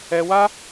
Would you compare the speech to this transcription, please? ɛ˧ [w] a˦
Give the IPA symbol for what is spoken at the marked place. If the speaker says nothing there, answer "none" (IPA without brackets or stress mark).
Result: w